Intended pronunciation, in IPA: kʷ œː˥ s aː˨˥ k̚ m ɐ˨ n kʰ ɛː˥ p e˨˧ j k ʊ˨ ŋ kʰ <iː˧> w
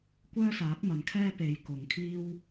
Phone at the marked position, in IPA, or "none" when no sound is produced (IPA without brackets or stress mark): iː˥